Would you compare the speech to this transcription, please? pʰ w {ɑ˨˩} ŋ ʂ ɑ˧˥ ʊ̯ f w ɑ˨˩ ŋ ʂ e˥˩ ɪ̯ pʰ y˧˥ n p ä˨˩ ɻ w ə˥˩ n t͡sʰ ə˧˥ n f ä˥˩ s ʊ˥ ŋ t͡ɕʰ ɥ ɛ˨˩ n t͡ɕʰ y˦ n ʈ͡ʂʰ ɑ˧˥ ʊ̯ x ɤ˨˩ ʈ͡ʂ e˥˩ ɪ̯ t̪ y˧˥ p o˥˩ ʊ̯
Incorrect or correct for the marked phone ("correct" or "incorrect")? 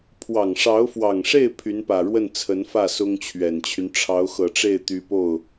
correct